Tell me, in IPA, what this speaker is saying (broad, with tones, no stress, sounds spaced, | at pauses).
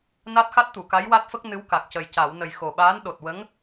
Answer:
n a˦˥ t̚ x a˦˥ t̚ t̪ u˨˩˨ k a˧˥ j w a˦˥ t̚ f ə˦˥ k̚ n ɨ˧˥ w k a˨˩ k̚ c ə˨˩ j c a˨˩˨ w n ə˨˩ j x o˨˩ ɓ aː˧˥ n ɗ o˨˩ t̚ w ə˧˥ ŋ